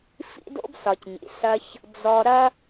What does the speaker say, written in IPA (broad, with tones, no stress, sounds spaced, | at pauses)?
f ḭ˦ d o̰˦ b s ɒ˨ c ɲ ḭ˨ s ɐ˧ ç | d͡z ɔ˧ ɾ ɐ˦